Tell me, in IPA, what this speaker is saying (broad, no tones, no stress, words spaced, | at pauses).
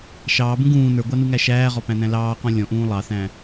ʃɑːbũ ɡũː nə˞ɡʷɑnuŋæ ʃæːʁɔpæ̃næ̃ lɑːqɔ̃ lʲɔ̃ʔũː lˠɑθæ̃